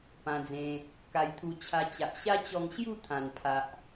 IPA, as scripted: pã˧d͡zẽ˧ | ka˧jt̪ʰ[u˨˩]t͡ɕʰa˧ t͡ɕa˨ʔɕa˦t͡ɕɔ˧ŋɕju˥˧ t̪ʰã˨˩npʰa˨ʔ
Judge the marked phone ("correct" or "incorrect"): incorrect